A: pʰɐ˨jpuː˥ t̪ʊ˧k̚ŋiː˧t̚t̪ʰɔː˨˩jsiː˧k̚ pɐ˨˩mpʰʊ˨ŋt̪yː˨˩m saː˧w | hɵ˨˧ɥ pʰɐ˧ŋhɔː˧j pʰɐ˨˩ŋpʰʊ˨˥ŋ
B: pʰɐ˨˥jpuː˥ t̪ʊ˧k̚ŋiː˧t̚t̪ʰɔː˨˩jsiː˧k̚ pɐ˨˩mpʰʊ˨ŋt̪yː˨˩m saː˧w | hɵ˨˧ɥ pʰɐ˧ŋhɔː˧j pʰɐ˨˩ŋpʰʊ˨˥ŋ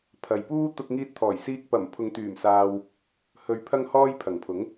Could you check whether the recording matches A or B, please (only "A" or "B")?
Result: A